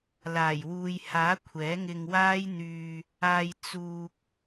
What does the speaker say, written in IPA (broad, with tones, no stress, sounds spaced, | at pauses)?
l aː˨˩ j w uː˨ j h aː˨˥ kʷʰ ɛː˨˥ ŋ ɪ˧ ŋ w aː˥ j n̪ yː˧ | aː˧ j t͡s uː˧ k̚